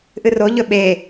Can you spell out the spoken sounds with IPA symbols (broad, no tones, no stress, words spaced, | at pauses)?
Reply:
ʔɨroʎɵ ɓe